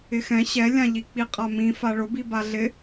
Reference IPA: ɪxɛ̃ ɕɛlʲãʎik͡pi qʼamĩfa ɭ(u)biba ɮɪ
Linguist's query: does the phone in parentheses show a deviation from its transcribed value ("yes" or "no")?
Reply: yes